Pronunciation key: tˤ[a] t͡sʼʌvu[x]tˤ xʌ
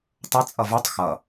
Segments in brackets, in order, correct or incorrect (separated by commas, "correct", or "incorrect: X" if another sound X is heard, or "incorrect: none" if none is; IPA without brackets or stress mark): incorrect: ʌ, incorrect: none